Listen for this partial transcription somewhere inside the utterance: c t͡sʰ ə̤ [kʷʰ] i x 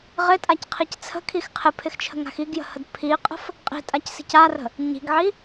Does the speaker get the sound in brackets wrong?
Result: yes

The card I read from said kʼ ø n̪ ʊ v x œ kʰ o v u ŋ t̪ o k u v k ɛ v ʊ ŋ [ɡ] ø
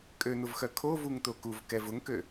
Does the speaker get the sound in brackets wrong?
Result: yes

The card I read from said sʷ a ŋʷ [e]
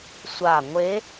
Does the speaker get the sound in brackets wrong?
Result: no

